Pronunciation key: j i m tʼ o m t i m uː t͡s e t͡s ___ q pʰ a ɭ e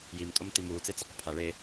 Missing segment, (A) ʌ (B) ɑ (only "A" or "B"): A